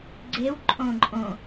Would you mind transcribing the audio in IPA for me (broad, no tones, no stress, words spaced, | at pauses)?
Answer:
ɡ͡ǀew ǃʼõǃʼõ